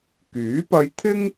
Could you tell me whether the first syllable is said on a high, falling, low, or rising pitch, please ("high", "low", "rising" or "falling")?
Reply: rising